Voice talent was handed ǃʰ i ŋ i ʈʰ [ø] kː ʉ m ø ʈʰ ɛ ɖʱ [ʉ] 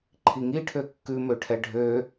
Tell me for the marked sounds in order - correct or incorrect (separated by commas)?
correct, incorrect